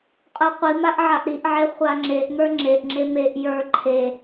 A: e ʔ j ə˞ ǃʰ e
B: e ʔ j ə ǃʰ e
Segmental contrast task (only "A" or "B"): A